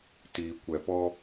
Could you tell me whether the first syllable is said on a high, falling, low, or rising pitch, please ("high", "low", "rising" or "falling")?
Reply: low